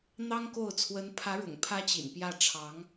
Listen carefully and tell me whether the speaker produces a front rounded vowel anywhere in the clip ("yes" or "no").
no